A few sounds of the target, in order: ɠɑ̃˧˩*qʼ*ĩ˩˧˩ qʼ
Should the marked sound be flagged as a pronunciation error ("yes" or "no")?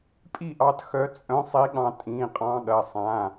yes